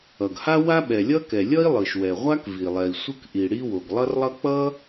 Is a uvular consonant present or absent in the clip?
present